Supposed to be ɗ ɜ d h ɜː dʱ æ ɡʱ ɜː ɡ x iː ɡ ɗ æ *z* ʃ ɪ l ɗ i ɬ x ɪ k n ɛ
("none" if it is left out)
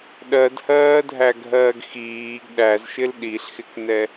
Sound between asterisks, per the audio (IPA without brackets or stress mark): z